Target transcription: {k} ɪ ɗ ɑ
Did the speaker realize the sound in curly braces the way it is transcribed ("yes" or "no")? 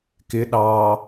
yes